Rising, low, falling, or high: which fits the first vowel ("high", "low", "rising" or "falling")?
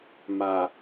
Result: low